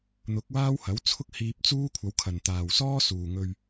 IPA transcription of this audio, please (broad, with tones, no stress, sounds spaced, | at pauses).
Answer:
n̪ ʊ˨˥ k̚ w aː˥ w h ɐ˨˥ w t͡sʰ ʊ˥ k̚ h iː˧ p̚ t͡s uː˥ kʷʰ ɐ˨˧ w kʰ ɐ˨ n t̪ aː˨ w s ɔː˥ s uː˨ ŋ ɵ˧ ɥ